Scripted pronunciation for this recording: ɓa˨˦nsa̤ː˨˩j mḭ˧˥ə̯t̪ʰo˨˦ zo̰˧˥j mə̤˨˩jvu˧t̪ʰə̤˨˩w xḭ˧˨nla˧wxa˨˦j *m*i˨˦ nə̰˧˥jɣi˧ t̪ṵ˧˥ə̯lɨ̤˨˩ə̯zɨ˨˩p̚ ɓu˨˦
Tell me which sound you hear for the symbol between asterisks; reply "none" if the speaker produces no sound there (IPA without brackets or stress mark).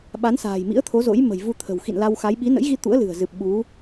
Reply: ɓ